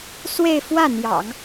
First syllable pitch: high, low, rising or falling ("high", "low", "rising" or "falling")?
falling